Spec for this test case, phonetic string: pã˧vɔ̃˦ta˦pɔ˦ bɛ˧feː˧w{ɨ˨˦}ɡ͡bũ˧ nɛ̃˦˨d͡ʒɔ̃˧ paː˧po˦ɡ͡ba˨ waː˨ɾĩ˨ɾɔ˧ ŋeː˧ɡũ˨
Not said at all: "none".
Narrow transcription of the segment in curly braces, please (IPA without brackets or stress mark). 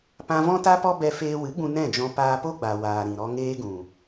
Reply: ɨ˨˦